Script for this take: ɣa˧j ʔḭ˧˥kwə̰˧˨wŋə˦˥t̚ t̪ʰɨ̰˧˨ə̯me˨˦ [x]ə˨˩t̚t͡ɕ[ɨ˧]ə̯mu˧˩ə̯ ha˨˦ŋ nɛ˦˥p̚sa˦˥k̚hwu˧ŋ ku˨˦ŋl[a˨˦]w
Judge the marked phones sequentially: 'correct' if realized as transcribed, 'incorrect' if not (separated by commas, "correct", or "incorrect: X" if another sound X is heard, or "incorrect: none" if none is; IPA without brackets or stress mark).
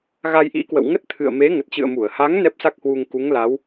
incorrect: ŋ, incorrect: ɨ̰˧˨, correct